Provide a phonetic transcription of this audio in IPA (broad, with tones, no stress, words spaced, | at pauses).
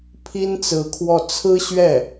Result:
pʰi˥nt͡sɹ̩˧˥kʰwɔ˥˩ t͡sʰɹ̩˥ɕɥɛ˥˩